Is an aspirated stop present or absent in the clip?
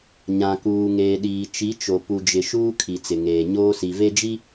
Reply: present